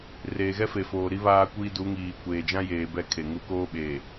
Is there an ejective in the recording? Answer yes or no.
no